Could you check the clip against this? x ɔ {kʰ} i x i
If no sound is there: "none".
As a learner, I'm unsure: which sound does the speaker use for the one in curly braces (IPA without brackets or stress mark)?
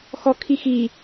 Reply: kʰ